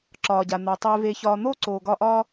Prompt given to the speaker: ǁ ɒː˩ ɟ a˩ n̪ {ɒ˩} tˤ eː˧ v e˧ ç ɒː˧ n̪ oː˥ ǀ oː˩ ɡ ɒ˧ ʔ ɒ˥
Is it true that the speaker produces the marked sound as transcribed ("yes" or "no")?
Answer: yes